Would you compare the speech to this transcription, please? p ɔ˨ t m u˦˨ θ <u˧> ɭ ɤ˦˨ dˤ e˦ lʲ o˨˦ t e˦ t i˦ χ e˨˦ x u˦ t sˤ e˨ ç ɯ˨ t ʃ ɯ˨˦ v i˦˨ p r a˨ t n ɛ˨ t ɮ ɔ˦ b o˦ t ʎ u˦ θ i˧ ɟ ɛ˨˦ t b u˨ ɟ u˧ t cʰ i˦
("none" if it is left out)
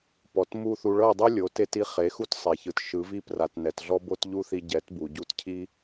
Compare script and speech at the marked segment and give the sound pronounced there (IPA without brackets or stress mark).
u˧